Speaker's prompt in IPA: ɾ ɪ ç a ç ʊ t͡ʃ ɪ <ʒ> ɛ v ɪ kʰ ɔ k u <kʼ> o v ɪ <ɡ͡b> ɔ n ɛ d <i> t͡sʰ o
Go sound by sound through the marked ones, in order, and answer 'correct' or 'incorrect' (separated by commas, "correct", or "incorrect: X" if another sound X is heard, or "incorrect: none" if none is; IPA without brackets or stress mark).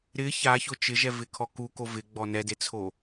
correct, incorrect: k, correct, incorrect: e